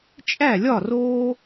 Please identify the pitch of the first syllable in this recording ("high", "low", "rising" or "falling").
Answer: falling